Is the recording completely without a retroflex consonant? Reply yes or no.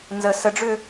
no